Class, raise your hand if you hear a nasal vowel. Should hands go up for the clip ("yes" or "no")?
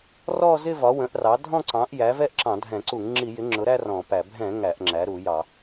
yes